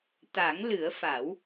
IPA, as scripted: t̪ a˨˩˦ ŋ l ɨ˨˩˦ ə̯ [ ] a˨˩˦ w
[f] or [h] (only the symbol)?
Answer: f